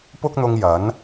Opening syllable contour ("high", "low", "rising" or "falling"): high